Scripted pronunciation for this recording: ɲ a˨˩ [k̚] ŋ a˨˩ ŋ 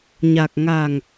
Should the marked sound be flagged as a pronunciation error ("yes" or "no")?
no